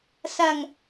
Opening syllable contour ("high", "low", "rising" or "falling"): low